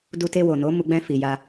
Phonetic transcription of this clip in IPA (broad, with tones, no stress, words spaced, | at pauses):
du˧te˧wo˨no˨˦ mu˧ ɡ͡bɛ̃˧fi˨ ja˧